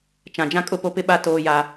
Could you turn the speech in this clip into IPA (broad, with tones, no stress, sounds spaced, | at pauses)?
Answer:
t͡ʃ ã˨ d͡ʒ ã˦ kʼ ʊ˦˨ p o˦ p ɪ˦ ɓ a˦ t oː˦ j a˦